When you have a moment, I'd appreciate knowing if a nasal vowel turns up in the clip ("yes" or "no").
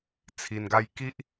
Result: no